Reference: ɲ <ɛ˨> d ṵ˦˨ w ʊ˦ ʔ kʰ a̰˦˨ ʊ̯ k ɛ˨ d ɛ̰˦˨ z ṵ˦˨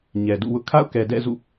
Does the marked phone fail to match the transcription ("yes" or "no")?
no